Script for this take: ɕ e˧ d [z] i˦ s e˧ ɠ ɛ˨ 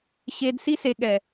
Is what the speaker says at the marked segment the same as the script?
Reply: no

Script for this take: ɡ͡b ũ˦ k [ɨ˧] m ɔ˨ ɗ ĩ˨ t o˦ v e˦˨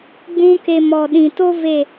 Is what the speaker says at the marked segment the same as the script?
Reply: no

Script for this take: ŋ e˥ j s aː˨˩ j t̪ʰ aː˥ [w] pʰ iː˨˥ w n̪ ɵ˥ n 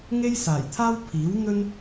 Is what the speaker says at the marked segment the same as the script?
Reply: yes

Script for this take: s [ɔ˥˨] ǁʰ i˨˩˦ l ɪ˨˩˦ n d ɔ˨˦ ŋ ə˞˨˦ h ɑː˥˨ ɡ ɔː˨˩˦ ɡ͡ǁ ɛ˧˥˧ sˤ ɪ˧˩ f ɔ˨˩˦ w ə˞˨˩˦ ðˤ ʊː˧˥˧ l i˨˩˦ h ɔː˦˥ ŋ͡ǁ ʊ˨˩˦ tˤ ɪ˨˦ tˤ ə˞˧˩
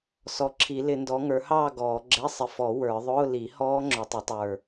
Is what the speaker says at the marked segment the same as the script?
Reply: no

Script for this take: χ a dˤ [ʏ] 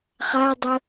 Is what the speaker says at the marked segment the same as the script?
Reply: no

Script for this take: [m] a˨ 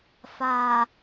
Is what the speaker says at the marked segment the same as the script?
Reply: no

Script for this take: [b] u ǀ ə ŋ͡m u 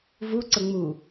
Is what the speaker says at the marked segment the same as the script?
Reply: no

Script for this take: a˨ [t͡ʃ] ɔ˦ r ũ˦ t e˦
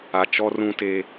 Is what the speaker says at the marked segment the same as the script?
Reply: yes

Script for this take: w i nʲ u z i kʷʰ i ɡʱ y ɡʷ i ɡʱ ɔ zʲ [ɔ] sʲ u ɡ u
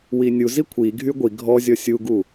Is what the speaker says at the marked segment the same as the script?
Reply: yes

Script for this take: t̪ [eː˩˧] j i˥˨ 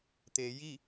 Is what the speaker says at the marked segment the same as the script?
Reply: yes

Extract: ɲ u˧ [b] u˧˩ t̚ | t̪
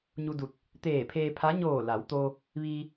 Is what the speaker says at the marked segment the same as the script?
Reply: no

